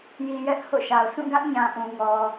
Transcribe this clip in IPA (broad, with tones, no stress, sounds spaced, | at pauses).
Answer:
j i˨ j ɛ˦ ʔ h o̰˦˨ ʃ a˨ ʊ̯ sʰ ũ˦˨ ɡ ä˦ ʔ ɲ ã˨ ʔ ũ˨ ŋ ɔ˨